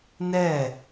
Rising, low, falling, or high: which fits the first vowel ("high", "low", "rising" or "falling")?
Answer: falling